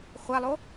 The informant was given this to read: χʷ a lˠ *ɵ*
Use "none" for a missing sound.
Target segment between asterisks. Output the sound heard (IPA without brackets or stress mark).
o